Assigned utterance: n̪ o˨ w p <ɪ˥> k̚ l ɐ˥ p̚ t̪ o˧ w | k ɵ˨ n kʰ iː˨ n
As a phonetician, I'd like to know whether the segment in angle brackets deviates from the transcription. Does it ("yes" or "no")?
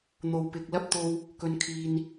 yes